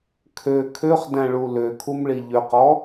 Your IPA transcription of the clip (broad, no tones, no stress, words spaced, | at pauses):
kʰø kʰøχdæ̃ɭu løkʰumɭi ʎøqɔ